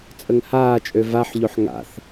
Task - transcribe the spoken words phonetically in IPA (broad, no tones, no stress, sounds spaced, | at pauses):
t͡sʼ ə ŋ h aː t͡ʃʼ ø v a ħ ʎ o ħ ŋ a̰ θ